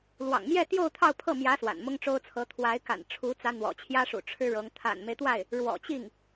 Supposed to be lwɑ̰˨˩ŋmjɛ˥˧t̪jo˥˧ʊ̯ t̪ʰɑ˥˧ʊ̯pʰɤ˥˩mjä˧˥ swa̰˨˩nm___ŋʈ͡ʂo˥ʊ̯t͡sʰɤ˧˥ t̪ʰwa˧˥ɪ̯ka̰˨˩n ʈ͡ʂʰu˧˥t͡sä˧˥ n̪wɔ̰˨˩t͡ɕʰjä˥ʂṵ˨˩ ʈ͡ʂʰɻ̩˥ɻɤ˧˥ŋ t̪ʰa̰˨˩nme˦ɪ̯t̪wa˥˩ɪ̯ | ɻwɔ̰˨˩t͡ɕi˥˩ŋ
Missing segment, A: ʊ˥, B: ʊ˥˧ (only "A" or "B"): A